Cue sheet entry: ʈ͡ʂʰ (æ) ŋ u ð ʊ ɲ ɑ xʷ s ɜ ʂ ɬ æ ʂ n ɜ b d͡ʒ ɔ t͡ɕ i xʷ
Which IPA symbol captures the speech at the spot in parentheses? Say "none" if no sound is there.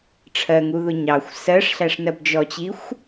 ɜ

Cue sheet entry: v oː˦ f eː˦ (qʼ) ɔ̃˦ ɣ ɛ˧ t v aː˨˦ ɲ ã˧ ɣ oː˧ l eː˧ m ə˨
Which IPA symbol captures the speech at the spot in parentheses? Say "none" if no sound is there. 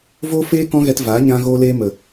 k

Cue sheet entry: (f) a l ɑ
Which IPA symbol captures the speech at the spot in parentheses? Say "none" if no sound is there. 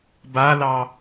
b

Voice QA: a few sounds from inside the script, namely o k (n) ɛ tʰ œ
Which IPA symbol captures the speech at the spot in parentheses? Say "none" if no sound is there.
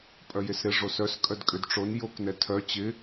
n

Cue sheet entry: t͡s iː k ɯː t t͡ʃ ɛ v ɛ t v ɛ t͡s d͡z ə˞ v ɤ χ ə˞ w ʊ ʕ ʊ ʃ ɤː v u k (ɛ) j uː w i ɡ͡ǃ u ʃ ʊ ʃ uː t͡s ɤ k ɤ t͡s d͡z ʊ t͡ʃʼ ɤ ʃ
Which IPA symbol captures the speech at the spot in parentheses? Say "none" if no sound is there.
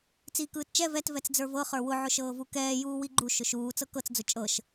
ɛː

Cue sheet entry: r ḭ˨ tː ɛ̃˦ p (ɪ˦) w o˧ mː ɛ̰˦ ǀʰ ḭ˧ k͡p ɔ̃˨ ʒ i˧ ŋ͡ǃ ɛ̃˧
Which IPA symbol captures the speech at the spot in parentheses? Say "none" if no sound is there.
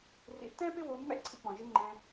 ɪ˦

